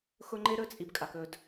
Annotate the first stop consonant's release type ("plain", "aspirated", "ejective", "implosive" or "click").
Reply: click